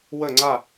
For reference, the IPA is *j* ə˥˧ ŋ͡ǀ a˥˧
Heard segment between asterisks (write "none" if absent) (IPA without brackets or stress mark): w